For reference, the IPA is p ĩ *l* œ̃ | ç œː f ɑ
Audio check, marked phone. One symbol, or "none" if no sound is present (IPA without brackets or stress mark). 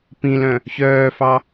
l